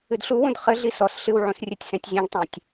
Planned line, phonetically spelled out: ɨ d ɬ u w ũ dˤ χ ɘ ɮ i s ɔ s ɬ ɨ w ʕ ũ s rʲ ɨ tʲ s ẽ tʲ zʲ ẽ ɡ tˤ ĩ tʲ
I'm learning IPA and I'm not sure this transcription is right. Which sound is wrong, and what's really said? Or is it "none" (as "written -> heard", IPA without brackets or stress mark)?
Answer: dˤ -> d